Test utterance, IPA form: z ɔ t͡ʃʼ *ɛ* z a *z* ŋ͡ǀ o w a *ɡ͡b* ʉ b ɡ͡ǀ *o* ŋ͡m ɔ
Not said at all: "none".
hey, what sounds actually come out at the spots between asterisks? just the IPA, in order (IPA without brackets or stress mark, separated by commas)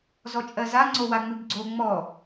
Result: ɜ, none, ŋ͡m, o